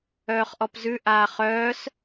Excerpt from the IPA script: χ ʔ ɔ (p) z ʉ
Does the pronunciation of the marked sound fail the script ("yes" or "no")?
no